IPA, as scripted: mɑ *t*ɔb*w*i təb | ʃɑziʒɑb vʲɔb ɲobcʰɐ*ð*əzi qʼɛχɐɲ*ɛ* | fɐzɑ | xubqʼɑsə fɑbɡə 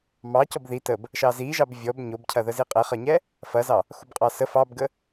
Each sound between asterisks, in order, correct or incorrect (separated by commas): incorrect, incorrect, correct, correct